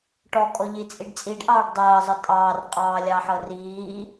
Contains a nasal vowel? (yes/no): no